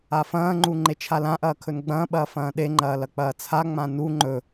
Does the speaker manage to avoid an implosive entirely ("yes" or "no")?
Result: no